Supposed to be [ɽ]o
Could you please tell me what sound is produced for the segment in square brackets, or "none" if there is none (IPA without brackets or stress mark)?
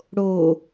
ɽ